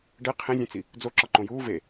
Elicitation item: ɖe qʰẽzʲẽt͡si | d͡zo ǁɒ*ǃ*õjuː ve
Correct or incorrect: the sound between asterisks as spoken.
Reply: correct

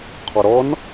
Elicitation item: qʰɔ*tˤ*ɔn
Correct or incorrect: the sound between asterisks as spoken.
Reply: incorrect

